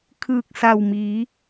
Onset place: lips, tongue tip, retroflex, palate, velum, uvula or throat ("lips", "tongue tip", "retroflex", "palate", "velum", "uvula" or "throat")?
velum